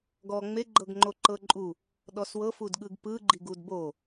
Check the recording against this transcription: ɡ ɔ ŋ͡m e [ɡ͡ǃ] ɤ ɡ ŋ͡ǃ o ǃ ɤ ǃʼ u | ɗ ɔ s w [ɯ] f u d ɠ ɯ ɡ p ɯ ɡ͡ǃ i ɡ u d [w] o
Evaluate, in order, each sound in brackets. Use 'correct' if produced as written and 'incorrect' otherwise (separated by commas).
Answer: correct, incorrect, incorrect